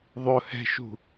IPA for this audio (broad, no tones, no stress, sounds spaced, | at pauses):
ðˤ ʊ h ɛ̤ ʃ ṳ